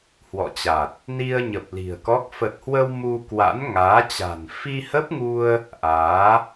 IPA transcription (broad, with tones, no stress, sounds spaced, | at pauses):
h w ɔ̰˧˨ t͡ɕ a˨˩ t̚ | n i˧ ə̯ ɲ ə˨˩ p̚ l i̤˨˩ ə̯ k ɔ˦˥ k̚ f ə˨˩ t̚ h w ə˧ w m u˧ k w a̰˧˥ n ŋ aː˨˦ t͡ɕ a̤˨˩ n f i˧ h ə˦˥ p̚ ŋ u˧ ə̯ | ʔ aː˨˦